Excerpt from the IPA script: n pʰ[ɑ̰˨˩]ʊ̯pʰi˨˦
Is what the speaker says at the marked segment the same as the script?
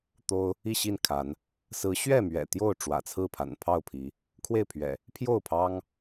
no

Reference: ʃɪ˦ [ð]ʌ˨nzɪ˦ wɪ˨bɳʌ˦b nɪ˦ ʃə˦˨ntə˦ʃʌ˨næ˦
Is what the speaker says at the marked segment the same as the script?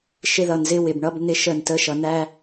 yes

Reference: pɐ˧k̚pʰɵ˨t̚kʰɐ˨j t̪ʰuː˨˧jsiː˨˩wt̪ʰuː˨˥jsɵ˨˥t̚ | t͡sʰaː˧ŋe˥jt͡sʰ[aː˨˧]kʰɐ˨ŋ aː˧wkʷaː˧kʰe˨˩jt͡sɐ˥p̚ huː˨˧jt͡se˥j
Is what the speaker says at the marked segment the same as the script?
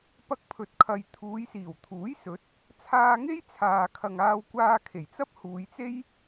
no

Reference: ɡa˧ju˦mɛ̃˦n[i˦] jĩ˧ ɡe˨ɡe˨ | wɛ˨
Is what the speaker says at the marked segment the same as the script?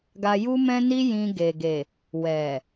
yes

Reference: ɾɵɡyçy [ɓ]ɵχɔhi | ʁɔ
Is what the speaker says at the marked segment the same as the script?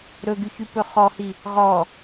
no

